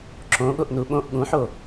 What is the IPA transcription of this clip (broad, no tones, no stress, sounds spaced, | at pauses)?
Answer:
ǁ õ ɠ o ʔ n u ɓ õ ʔ ɠ ũ ħ o